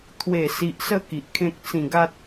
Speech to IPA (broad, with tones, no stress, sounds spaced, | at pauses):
t̪ʰ w e˨˩ s i˨ ʔ s ə˧ k i˨ ʔ kʰ ẽ˦ k̚ t͡s ĩ˨˩ ɡ a˦ t̚